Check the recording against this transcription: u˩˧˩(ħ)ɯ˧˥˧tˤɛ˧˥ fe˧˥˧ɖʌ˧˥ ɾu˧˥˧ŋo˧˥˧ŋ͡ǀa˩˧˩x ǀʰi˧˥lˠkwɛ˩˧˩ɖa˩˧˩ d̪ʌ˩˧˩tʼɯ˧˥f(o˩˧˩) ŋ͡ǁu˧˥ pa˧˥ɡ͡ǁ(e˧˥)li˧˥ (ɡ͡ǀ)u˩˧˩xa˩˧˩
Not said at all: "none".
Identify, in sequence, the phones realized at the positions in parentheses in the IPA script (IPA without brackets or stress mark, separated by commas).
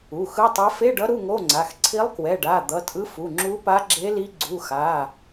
x, u˩˧˩, e˧˥, ɡ͡ǀ